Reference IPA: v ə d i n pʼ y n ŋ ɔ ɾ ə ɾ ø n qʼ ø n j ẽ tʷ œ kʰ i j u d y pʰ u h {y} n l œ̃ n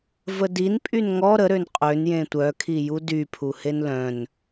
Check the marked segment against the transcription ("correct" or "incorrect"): incorrect